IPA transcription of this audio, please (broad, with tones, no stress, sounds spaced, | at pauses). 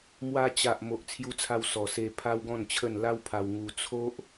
m w a˧ t͡ɕ a˨ ʔ m o˨ ʔ t͡sʰ j u˧ t͡sʰ a˧ w s ɔ˨˩ s e˧ pʰ a˦ w ɡ ɔ̃˥˧ n t͡ɕʰ ə˥˧ n l a˦ w pʰ a˧ w ŋ u˧ t͡sʰ o˦ ʔ